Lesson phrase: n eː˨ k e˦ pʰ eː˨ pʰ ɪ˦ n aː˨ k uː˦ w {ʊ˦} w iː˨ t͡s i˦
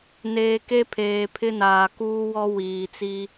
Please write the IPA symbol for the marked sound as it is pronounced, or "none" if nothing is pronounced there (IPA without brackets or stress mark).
ɔ˦